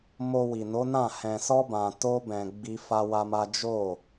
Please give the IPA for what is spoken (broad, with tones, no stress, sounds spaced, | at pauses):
m o˧ w i˨ n o˨˦ n ã˦˨ h ɛ̃˧ s ɔ˦ b ã˧ t o˦ b ɛ̃˧ ɡ͡b i˦ f a˦ w a˦ m a˦ d͡ʒ o˦˨